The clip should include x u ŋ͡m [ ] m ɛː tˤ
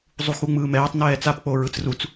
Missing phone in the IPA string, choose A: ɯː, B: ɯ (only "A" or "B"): A